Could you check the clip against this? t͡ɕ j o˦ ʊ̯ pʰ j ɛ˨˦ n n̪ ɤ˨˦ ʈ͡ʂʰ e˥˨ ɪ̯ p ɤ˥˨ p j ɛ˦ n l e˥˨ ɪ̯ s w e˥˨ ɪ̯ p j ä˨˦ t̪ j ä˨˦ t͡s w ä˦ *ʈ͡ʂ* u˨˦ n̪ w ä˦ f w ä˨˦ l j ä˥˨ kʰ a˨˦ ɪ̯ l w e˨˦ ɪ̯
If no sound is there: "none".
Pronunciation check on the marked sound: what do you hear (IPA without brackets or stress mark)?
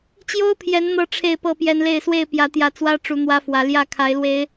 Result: ʈ͡ʂ